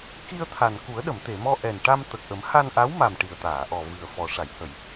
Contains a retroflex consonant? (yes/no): yes